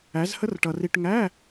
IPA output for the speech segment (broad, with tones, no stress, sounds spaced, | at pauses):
æ˧˥ z h ə˥ r ʈ ʌ˧ r i˧ ʈ ŋ æ˧˥˧